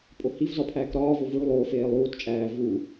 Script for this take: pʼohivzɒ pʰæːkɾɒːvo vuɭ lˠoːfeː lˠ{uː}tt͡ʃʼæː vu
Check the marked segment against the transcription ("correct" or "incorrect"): correct